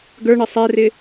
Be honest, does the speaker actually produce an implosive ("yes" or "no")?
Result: no